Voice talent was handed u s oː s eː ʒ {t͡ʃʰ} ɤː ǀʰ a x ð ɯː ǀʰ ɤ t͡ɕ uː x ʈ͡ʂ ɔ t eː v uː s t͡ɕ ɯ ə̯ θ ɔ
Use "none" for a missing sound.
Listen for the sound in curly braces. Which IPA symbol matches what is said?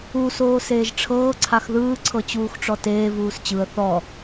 ʈ͡ʂʰ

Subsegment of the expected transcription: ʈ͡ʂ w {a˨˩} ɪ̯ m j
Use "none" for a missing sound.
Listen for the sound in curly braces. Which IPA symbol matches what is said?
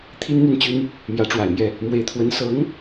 a˨˩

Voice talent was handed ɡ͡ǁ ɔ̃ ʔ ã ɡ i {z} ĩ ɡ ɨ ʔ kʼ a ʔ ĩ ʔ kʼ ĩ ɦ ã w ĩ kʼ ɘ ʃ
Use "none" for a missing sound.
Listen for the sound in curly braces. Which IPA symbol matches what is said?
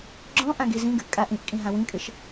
z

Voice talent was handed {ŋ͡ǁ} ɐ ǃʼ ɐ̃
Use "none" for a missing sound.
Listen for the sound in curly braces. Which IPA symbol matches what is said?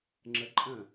ŋ͡ǁ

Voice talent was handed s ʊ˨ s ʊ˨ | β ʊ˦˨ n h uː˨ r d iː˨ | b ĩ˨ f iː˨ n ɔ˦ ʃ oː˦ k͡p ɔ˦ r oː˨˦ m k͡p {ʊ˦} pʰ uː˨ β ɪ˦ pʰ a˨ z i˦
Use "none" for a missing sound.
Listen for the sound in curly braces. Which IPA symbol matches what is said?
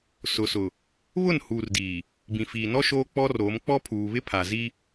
ɔ˦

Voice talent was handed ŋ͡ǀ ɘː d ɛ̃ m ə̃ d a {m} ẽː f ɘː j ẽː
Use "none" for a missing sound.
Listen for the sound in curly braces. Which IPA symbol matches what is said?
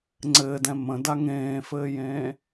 ŋ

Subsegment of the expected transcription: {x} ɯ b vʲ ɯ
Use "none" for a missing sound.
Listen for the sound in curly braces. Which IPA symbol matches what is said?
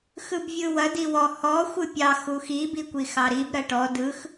x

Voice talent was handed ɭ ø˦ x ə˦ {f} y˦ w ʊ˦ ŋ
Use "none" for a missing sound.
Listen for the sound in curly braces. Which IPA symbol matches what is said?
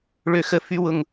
f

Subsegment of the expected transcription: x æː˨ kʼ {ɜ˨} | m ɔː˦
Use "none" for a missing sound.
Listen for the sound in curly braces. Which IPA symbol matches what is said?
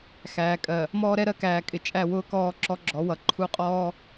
ɜ˨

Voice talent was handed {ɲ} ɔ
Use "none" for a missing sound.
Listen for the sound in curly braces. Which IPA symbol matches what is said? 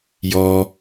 j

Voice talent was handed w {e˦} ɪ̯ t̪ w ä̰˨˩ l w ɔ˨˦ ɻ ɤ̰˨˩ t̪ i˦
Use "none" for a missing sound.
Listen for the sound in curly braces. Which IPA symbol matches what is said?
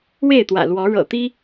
e˥˨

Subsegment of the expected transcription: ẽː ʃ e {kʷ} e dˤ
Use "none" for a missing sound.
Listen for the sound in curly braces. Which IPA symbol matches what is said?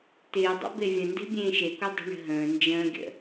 kʷ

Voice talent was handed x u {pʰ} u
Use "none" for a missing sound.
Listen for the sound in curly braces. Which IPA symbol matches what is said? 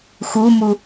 m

